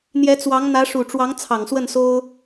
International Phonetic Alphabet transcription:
n̪ j ɛ˧˥ t͡s w ɑ˧˥ ŋ n̪ ä˧˥ ʂ u˨˩ ʈ͡ʂ w ɑ˧˥ ŋ t͡sʰ ɑ˨˩ ŋ s w ə˥˩ n s o˥ ʊ̯

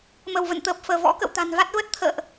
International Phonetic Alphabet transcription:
m ə˧˩ w v ə̰˧˨ n t̪ əː˨˩ p̚ f əː˧˩ v ɔ̰˧˥ k ə̰˧˨ w t̪ a̤˨˩ n v a˦˥ t̚ v ə˦˥ t̚ t̪ʰ ə̰ː˧˨ ʔ

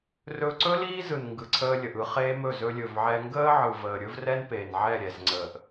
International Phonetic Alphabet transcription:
r ɵ˧ ǀ ɵ˦ l iː˦ z ɯ˨ n ŋ ɡ ɯ˨ ǀʰ əː˧ lʲ ə˨ ʔ ɯ˧ χ eː˦ m ɵ˦˨ z ɵ˧ lʲ ɵ˨ v ʕ ɛ˧ ŋ ɡ əː˦ ʕ ɯ˨ v əː˨ ɾʲ ɵ˦ v r ɛ˦ n p e˨ n ʕ ɛ˦˨ ɾʲ ɛ˨ z ŋ͡ǀ əː˨ ʔ

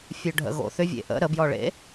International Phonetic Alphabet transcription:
fʲ ø ɖʱ ə̰ ɣ o̰ θ ʏ vʲ ḛ ʔ ə̰ ɾ ə b j ɔ ɭ ḛ

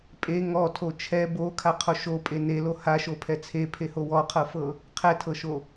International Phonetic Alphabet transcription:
pʼ e ŋ ɔ tʰ o t͡ʃʰ ɛ b o kʰ a qʰ o ʃ o pʼ e n e l o h a ʃ o pʰ ɛ t͡sʰ e pʰ e h o w ɔ qʰ ɤ f ɤ | qʰ ɛ tʰ ɤ ʃ o

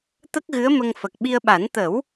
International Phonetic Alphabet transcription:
t̪ ə˦˥ k̚ ɣ ɨ˧˥ ə̯ m ə˧ ŋ f ə˨˩ k̚ ɓ i˧ ə̯ ɓ a˨˩˦ n t̪ ə˨˩˦ w

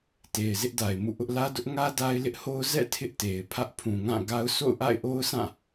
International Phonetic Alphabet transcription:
t e˨ ɪ̯ z ɪ˦ ʔ d a˨ ɪ̯ m ṵ˦˨ ʔ ʊ˦ ʔ l ä˦ d ʊ˦ ʔ ŋ ä˦ d a˦ ɪ̯ l ɪ˦ ʔ h o˦ ʊ̯ z ɛ̰˦˨ tʰ ɪ˦ ʔ t e˨ ɪ̯ pʰ ä˦ ʔ pʰ ũ˨ ŋ ã˦˨ ɡ a˦ ʊ̯ sʰ o̰˦˨ ʊ̯ ʔ a̰˦˨ ɪ̯ ʔ o˦ ʊ̯ s ã˦˨

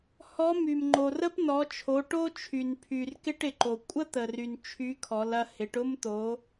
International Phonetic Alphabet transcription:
h ɔ˧˥ m y˩ m ŋ͡ǃ o˩ r ə˥ p n ɔ˩˧ t͡ʃʰ o˩˧ ʈ o˥ t͡ʃʰ y˩ n pʰ y˩ r k ɪ˥ ʈ ɪ˩ ǃ o˩ kʷʼ ə˥ t̪ ə˩ r y˩ n t͡ʃʰ y˧˥ kʰ ɔ˩˧ l ɐ˧ h ɪ˩˧ ʈ ʊ˥ m t̪ o˩˧

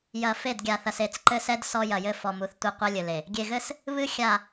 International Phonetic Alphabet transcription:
j ɐ˨ f e˦˨ d ɡʲ a˨ θ ɐ˨ s e˨ t͡s ǃ ɘ˦ s ɛ˦ d s ɔ˦ j ɐ˨ j ɘ˦ f ɔ˨ m u˨ θ tʷ ɘ˦˨ qʷ ɛ˦ lʲ ɘ˨ l e˨ | ɡʲ e˨ ɣ ɘ˦ s | β ɨ˦ xʲ a˨

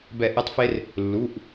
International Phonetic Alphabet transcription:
b ɛ˦˨ ʔ e˥ tˤ f e˥ r | lː u˩˧˩ ʔ

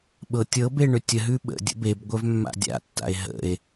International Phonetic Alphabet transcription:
ɓ ɤ tʲ ɤ b e ɳ ʏ tʲ ə ɦ ʉ ɓ ə̰ dʲ ə̰ b e b ɡʷ œ v mː a̰ dʲ a̰ tː a̰ e̯ ɦ ə̰ e̯

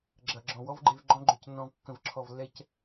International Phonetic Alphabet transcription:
ɡ͡ǁ ɐ˨ ɡ͡ǁ ɔ̃˨ w ɔ˦ v ɡ͡ǃ e˧ v ɡ͡ǃ ɔ̃˦ ɡ͡ǃ ø˧ c nː ɔ̃˧ v kː ə̃˨ v ǁʰ ɔ˨ v lː ɛ˧ c

